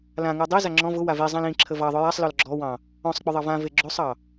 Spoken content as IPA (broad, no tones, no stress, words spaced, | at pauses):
lãŋʉ dˤeza ŋ͡ǁɔ̃ vʊ wavizˤãl ĩǁʰə vɑðˤʊ jasˤlɔl ɡ͡ǁɔwɑ̃ | ɔ̃sˤ k͡pʊðˤɑvãve ɡ͡ǁosˤɑ